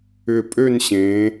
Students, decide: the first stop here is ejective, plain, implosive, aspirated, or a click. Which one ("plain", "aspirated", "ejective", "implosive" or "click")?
ejective